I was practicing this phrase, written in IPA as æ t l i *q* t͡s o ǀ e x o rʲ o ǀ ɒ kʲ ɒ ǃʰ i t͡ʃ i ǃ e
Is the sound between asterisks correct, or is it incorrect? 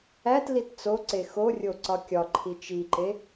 incorrect